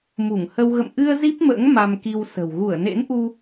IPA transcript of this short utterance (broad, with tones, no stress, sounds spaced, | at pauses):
m u˧˩ ŋ h ə˧ w ɣ ə̰˧˨ m ʔ ɨ˧ ə̯ z i˦˥ p̚ m ə̰ː˧˥ ŋ m a˧ m k i˧ w s ə̤˨˩ w ɣ u˧˩ ə̯ n ḛ˧˥ n ʔ u˧